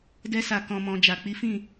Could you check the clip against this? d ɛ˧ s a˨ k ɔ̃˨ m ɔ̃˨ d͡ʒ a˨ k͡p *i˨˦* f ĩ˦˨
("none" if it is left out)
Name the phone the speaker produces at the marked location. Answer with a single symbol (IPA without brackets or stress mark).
i˨˦